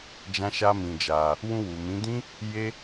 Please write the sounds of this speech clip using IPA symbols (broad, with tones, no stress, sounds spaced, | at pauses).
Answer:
d͡ʒ ã˦ ʃ a˦ m ĩ˧ d͡ʒ a˧ | w ũ˧ w u˨ m ĩ˨˦ d ĩ˦ | j e˦